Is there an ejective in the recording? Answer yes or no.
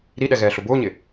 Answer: no